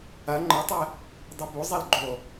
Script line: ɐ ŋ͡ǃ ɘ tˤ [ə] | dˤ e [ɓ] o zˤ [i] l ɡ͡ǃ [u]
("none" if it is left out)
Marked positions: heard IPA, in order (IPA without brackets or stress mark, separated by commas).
ɛ, b, e, o